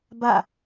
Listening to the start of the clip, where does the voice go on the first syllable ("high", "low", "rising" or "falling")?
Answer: falling